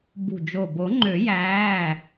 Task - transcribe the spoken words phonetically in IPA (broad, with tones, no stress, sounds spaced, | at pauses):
b ṳ˧˩ d͡ʒ o˧˩ b o˨˩˦ ŋ͡ǃ ø˨˩˦ j æː˩˧˩